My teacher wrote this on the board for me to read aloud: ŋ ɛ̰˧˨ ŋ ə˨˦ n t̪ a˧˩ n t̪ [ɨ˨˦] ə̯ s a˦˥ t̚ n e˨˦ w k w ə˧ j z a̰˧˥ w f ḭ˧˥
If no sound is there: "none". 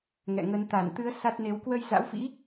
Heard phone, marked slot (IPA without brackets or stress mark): ɨ˨˦